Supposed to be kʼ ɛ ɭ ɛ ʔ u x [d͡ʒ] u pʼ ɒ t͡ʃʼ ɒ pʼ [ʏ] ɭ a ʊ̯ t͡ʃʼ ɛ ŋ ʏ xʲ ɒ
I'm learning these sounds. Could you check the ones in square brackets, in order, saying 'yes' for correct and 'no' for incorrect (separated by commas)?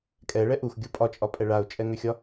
no, no